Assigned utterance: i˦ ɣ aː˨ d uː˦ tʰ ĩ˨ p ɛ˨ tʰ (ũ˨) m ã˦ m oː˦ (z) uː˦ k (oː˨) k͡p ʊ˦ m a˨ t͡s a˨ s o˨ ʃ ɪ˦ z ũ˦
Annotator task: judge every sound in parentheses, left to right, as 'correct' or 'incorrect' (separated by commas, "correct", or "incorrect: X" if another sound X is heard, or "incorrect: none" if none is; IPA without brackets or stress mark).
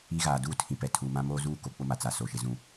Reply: incorrect: u˨, correct, incorrect: o˨